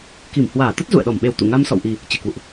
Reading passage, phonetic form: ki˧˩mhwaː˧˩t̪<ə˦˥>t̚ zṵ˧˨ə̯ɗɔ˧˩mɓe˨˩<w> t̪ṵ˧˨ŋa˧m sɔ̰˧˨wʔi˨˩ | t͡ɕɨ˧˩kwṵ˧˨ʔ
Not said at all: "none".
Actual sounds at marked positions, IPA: ə˦˥, w

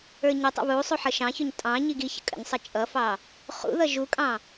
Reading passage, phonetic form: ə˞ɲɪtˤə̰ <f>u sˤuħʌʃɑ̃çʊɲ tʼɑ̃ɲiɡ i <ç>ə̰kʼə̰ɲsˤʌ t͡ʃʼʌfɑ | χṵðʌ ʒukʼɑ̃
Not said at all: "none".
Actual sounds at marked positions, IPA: β, ç

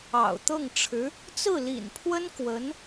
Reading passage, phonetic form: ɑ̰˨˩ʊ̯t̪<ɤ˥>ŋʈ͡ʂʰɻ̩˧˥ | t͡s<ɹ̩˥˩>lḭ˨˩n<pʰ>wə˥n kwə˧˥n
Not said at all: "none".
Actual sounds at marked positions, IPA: ɤ˥˩, ɹ̩˥˩, pʰ

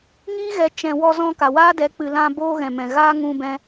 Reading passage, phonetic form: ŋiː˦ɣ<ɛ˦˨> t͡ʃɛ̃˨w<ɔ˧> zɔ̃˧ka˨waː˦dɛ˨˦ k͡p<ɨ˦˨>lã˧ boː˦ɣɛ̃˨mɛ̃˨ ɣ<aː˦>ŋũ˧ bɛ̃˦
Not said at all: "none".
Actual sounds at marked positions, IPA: ɛ˨, ɔ˧, ɨ˨, aː˦

